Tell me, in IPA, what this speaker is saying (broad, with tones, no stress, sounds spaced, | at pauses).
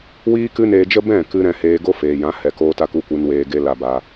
w iː˦ k ɨ˦ n eː˧ d͡ʒ ə˦ b ɛ̃˦˨ k ɨ˧ ɾ ɛ̃˧ h eː˧ ɡ o˦ f eː˨ j ã˨˦ h ɛ˨ k oː˧ t a˧ k u˦ kʷ ɨ˧ n w eː˧ ɡ e˦ l a˧ b a˧